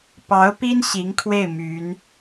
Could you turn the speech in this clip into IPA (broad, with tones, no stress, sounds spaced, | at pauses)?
p ɑ˧˥ ʊ̯ p i˥ n ɕ i˧˥ ŋ kʰ w e˥˩ ɪ̯ m y˧˥ n